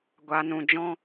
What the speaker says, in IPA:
ɡʷa˨ nũ˨ d͡ʒɔ̃˧

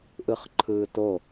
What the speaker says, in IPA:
ʔɯχǃʰɯːto

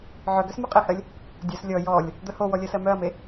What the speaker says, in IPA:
ʕœ ɡœsmoqʼehɜlʲ | dʲœs lʲɔ jɔlʲ | d̪œhowɔ lʲɜsɜmœɐ̯me

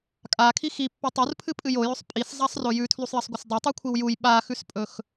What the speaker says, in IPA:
kʼakʰi xipːi tˤurpʰɨpʼɨj ojɵsˤ pʼiszˤasˤro jʉtʰlusˤjɐsˤɡʷɐs dˤotˤʉkʷʰiw juj ɓaxʉspʼɵx

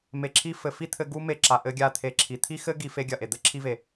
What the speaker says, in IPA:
me˧ǁʰi˦ fɘ˨ fi˦t̪ʰɘ˧ ɡu˦me˧ǁa˨ ʔɘ˧ɡʲa˧ t̪ʰe˨ǁʰi˨t̪ʰi˦ xɘ˦ ɡi˧fe˧ɡʲɐ˨ʔe˨ d̪ɘ˦ǁʰi˧ve˨

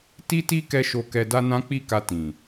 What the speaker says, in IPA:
ti˦ti˦ kɛ˦ʃo˧kɛ˧da˦ nã˦k͡pi˦˨ka˧ tĩ˨

